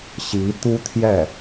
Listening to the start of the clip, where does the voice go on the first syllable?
rising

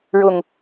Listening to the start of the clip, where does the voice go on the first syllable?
low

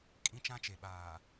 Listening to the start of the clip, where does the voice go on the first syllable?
high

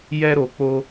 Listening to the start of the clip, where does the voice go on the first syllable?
high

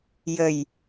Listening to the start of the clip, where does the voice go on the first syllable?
low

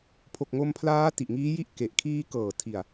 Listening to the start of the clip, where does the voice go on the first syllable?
low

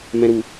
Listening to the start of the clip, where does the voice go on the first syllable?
low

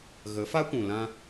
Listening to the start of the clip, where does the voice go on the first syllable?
rising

